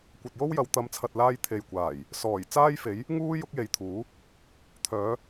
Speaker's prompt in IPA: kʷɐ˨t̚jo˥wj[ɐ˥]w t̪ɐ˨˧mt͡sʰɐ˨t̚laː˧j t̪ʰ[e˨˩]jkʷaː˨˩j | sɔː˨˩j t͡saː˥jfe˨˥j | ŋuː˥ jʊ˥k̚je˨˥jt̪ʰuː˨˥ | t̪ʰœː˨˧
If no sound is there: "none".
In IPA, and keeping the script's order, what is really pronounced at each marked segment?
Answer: ɐ˨˧, e˨

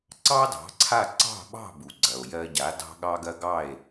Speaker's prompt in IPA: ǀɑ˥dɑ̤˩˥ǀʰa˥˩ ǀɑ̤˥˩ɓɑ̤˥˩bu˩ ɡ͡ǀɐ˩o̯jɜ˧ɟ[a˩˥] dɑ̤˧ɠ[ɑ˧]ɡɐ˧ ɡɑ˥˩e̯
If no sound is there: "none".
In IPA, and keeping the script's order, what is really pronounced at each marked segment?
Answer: a˩˥, ɑ˧

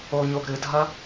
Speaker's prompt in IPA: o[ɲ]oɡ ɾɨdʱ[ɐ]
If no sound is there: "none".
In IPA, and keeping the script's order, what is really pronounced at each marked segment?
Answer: ɲ, ɐ

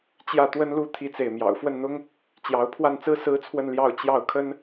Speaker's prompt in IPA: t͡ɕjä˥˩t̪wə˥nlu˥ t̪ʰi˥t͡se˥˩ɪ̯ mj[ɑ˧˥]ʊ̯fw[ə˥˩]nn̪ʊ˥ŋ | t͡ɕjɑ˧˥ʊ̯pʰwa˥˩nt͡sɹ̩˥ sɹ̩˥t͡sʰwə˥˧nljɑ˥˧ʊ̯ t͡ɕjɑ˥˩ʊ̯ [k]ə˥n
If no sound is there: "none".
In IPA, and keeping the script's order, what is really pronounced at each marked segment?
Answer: ɑ̰˨˩, ə˥˩, kʰ

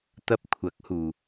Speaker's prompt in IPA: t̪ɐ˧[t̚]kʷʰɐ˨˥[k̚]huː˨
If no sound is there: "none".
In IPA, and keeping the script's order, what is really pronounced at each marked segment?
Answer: p̚, k̚

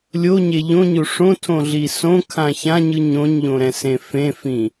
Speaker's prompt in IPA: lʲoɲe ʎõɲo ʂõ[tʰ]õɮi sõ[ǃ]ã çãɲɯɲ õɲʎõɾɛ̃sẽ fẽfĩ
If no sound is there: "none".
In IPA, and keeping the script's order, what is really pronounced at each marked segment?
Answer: tʰ, kʰ

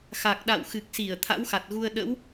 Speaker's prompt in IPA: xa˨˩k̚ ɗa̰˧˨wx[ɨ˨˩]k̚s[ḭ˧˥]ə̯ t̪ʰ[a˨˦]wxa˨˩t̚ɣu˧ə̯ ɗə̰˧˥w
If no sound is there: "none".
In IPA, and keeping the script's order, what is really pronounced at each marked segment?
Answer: ɨ˨˩, i˧˩, a̰˧˥

